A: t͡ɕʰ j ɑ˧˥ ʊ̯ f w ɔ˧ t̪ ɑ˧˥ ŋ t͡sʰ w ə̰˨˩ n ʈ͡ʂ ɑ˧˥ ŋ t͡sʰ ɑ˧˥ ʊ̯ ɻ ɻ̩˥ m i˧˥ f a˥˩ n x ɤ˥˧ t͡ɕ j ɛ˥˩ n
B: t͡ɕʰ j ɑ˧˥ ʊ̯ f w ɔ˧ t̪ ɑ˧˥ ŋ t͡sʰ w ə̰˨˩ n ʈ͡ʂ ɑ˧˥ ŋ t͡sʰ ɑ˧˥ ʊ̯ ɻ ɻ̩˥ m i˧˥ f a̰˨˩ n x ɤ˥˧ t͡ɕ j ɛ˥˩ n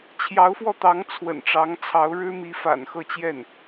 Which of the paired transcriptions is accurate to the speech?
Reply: B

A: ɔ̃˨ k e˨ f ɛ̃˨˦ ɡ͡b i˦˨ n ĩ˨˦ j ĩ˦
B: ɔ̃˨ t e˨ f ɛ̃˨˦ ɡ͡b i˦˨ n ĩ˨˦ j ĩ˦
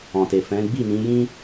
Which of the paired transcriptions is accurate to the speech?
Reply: B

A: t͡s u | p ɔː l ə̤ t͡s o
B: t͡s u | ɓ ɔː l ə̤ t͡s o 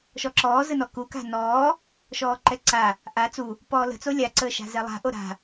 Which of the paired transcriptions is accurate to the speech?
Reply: A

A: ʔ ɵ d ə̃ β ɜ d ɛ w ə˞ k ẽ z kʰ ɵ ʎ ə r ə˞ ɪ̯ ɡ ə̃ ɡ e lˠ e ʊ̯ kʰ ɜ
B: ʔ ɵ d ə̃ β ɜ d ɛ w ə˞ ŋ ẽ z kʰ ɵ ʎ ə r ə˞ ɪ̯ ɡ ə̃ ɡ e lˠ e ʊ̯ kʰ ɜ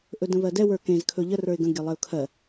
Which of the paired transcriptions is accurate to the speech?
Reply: A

